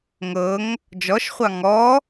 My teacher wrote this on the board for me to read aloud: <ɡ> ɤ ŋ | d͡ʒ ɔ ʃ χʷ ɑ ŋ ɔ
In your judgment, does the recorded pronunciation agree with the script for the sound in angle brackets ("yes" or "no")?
no